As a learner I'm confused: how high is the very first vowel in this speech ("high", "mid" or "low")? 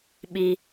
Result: high